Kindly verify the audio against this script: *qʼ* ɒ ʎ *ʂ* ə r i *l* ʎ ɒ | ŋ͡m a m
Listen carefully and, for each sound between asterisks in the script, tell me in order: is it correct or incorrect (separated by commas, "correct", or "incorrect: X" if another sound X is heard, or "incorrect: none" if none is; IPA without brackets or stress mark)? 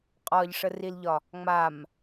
correct, correct, correct